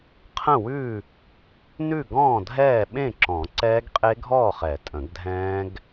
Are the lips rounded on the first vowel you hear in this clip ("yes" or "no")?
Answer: no